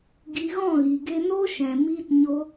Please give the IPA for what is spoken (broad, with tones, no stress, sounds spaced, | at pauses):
ɡ i˧ ɣ ɔ̃˦˨ ɣ i˨ ɡ e˧ n o˦ ʃ ɛ̃˨ m iː˧ t ɲ o˧